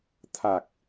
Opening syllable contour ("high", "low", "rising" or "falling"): low